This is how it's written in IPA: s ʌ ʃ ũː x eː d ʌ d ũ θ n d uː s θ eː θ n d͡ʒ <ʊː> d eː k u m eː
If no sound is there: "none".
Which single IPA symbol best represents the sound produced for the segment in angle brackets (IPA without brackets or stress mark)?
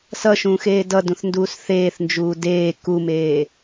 uː